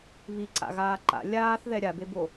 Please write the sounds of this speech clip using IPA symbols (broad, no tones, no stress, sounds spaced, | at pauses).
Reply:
β i ǀ a̰ ɣ aː ǃ a̰ lʲ aː θ ð ɛ ɾʲ a b e b o